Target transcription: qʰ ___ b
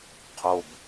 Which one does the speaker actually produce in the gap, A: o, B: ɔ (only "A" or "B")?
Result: A